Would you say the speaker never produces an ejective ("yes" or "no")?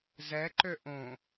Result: yes